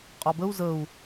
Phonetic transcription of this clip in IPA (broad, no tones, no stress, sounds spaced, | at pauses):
qʼ ɒ b ə u̯ z ə u̯